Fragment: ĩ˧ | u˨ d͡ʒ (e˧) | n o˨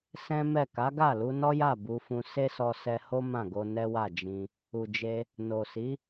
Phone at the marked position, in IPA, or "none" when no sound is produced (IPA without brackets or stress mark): e˧